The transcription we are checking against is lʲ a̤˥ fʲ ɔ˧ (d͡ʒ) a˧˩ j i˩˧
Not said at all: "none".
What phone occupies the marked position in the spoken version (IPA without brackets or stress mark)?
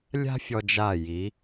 d͡ʒ